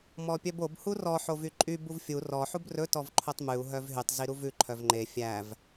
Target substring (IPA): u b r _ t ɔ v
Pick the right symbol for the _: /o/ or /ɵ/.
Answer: ɵ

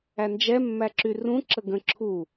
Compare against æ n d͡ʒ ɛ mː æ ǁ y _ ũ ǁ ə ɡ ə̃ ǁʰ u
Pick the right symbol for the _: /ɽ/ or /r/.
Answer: r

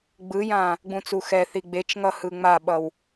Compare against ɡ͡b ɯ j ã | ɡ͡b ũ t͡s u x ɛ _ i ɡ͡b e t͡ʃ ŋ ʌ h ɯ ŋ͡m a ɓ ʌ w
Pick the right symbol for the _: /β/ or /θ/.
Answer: θ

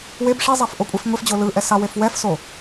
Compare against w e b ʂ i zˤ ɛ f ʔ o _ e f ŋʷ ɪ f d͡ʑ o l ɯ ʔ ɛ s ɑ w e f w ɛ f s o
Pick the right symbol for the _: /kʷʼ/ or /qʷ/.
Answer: kʷʼ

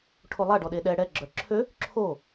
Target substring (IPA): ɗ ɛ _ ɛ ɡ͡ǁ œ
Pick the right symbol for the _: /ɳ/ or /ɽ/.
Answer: ɽ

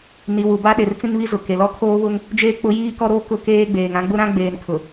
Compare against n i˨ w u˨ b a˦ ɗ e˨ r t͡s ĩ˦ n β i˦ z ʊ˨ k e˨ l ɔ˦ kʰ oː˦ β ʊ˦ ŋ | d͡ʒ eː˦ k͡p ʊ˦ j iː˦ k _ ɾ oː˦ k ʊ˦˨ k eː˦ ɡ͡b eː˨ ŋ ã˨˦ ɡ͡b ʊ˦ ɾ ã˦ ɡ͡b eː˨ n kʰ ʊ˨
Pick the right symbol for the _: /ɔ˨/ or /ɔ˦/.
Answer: ɔ˦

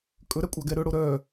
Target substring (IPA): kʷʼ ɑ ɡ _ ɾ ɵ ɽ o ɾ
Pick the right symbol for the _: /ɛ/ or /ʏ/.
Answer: ɛ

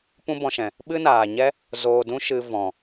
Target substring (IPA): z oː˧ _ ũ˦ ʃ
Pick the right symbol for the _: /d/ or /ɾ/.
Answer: d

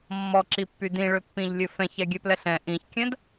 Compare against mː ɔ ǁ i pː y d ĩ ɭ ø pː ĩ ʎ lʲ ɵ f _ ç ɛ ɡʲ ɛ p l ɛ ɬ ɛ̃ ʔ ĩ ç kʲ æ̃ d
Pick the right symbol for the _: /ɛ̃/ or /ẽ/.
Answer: ɛ̃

